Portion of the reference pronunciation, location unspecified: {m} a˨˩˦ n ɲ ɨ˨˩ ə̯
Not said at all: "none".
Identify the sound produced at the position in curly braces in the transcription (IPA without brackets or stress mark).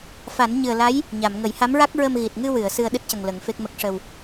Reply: f